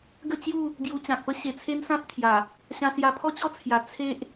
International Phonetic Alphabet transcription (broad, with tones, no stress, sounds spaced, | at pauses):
ɡ ə˥˧ t͡ɕ j u˥˧ | ɡ j u˧ t͡ɕ ã˨ k̚ p ə˦ ɕ e˨˩ t͡sʰ e˦ n s ã˦ t̚ t̪ʰ j a˨˩ | ɕ ã˧ s j a˧ pʰ ɔ˥˧ t͡ɕ ɔ˥˧ t͡sʰ j a˨˩ t͡sʰ e˦ ʔ